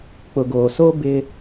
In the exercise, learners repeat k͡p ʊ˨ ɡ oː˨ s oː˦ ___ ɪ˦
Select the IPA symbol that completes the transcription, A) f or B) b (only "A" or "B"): B